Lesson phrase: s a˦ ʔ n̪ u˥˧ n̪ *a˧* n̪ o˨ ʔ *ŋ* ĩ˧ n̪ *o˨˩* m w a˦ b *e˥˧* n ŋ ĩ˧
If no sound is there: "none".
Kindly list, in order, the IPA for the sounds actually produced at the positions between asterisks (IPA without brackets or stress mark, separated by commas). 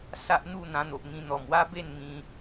ã˧, ŋ, ɔ˨˩, e˥˧